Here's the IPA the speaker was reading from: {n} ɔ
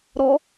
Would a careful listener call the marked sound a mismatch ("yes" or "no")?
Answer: yes